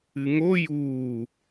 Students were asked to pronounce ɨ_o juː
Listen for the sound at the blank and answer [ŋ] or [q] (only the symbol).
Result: ŋ